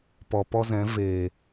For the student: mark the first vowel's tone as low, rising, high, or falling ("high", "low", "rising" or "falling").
low